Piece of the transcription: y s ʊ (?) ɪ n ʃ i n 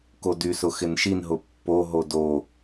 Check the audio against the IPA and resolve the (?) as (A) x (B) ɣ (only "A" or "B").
A